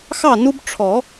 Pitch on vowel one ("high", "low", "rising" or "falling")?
falling